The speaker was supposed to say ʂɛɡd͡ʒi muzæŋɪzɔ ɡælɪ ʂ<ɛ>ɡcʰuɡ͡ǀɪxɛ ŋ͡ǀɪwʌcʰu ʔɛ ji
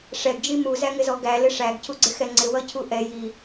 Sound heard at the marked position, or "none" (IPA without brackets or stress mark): æ